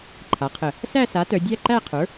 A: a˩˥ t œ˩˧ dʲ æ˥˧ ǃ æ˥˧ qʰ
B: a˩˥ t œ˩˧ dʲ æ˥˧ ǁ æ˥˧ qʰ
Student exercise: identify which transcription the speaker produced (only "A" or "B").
A